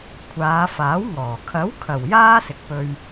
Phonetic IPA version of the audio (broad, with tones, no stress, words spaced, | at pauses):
kʷʰaː˨˧faː˨˥wŋɔː˨˩ kʰɐ˨˥w kʰɐ˨˩w jaː˥sɪ˨k̚pɵ˧ɥ